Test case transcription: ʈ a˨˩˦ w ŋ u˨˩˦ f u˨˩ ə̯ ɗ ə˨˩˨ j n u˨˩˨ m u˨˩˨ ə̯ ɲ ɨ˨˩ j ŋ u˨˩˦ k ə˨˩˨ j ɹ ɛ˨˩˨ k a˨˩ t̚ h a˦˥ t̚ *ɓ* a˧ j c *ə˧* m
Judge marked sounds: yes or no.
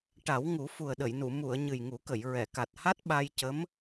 yes, no

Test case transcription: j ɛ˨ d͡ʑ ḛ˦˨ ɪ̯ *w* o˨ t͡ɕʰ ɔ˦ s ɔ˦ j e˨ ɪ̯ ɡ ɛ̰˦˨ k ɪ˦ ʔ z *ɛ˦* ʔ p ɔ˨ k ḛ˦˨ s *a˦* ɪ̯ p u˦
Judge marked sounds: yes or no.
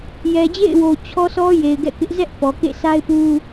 yes, yes, yes

